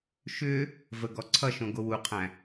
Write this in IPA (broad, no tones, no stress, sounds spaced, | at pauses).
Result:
ʃ ʏ | v ə ɡ ɔ ǀʰ ʌ ʃ õ ɡ o w u qʰ æ̃